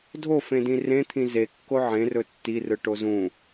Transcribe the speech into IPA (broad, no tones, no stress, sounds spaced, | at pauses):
dʱ o f ẽ d ĩ r ẽ t̪ʰ ĩ z e kː o ʕ ẽ r ɵ tː i r ɯ ʈ o z ũ